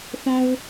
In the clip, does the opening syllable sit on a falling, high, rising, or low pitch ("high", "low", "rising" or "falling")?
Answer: high